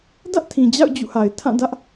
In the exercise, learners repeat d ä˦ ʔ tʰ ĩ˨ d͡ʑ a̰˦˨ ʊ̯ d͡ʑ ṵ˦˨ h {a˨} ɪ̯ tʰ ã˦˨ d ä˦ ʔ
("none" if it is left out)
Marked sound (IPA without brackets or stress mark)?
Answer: a˨